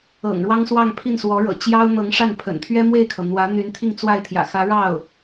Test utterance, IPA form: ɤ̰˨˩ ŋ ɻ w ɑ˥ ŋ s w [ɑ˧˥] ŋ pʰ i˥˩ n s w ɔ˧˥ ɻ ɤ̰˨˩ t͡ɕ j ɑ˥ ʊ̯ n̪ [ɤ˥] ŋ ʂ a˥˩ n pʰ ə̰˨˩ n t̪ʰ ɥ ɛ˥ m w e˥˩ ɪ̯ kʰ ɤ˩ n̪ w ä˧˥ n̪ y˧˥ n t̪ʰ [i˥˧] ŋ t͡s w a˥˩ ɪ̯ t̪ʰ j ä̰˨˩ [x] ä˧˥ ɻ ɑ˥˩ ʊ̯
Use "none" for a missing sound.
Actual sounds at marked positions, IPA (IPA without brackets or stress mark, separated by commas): ɑ˥˧, ɤ˧˥, i˥˧, x